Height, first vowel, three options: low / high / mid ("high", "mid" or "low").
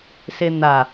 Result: mid